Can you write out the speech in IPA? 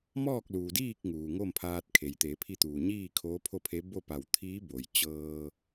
m ɔː˥˨ k̚ l uː˩ d iː˥˨ k̚ ŋ uː˩ ŋ o˥˨ m pʰ aː˧ t̚ kʰ e˩ j t̪ e˩˧ pʰ i˧ t̪ uː˩ ɲ iː˥˨ kʰ oː˧˥ pʰ o˥˨ pʰ e˧˥ b o˥˨ p a˧˩ w t̪ʰ iː˧˥ b o˩ j t͡ɕ ɤː˧

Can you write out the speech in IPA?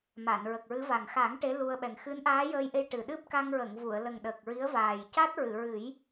m a˨˩˨ n ɹ ə˨˩ k̚ ɹ ɨ˧˥ v a˨˩ ŋ x a˨˩˦ ŋ ʈ e˧˥ l u˧ ə̯ ɓ ɛ˨˩ ŋ x ɨ˧˥ n ʔ aː˧˥ j əː˧ j ʔ e˧ j ʈ ɨ˨˩ ɗ ɨ˦˥ p̚ k a˧ ŋ ɹ ə˨˩˨ ŋ v u˨˩˨ ə̯ l ə˨˩ ŋ ɗ ə˨˩ k̚ ɹ i˧˥ ə̯ v aː˨˩ j c a˦˥ t̚ ɹ ɨ˨˩˨ ɹ ɨ˨˩˦ j

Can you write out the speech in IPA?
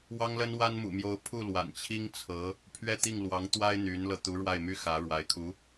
w ɑ˥ ŋ l ə˥ n w a˥ n m ṵ˨˩ m j o˧˥ ʊ̯ pʰ u˥˩ l w a̰˨˩ n t͡ɕʰ i˥ ŋ t͡sʰ ɤ˧˥ | pʰ ɥ ɛ˥˧ t̪ i˥˩ ŋ l w ɑ˧˥ ŋ t̪ w a˥ ɪ̯ n̪ y˧˥ n l ɤ˧ t̪ u˧˥ ɻ w a˥˩ ɪ̯ m y˥ x ä˧˥ ɻ w a˧˥ ɪ̯ kʰ u˧˥

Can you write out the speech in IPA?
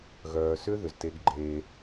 ɣ œː˨ s ʏ˦ ð ʏ˨ z t e˦ ɡ ɡ͡ǃ eː˦

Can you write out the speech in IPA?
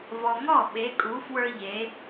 v ɔ˨ ŋ ɔ˥˩ ɓ e˨˦ kʼ u˨˦ f w ə˞˦ ʎ e˨˦

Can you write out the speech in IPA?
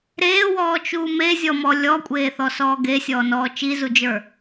ɾ eː w ɔː t͡ʃ uː m e zʲ ɔ m ɔ lʲ ɔ kʷʼ eː θ ɔ s ɔː ɡ e sʲ ɔː n ɔː t͡ʃ i z u d͡ʒ ə˞

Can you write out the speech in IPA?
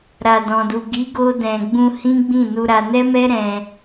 ɾ a˨ d ɔ̃˨ d u˨ ɡ i˨˦ ɡ o˧ d ɛ̃˨ ɡ͡b ũ˧ h ĩ˦ ɡ͡b ĩ˦˨ n u˧ ɾ a˧ n ɛ˦ m ɛ˦ ɾ ɛ̃˧

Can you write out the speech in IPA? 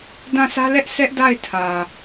d ã˦˨ s ä˦ l ɛ˦ ʔ s ɛ˦ ʔ d a˦˨ ɪ̯ tʰ ä˨

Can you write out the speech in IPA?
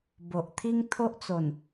b o˨ ʔ t̪ʰ i˦ ŋ t̪ʰ o˦ ʔ t͡s o˨˩ n

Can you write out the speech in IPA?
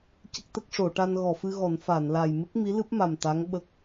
c ə˦˥ k̚ t̪ ə˦˥ k̚ ʂ o˨˩˨ ʈ a˧ n ɣ ɔ˨˩˨ f ɨ˧ ɣ ɔ˨˩˦ n f a˨˩˨ n l a˨˩ j m ɨ˦˥ k̚ m i˧˥ l ɨ˦˥ p̚ m a˨˩ m t̪ a˧˥ ŋ ɓ ə˦˥ k̚

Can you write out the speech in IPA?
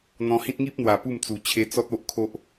n̪ ɔ̃˧ h ĩ˦ t̚ ŋ i˦ p̚ n̪ w a˨˩ p u˥˧ m t͡s u˨˩ t͡ɕʰ e˧ t͡s ɔ˦ t̚ o˦ ʔ kʰ o˦ ʔ

